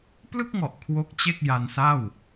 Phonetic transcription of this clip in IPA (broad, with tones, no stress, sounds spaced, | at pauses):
p l ɯ˥˩ k̚ ŋ ɔ˨˩ ʔ kʰ w o˦˥ k̚ t͡ɕ e˥˩ k̚ j a˧ n s a˥˩ w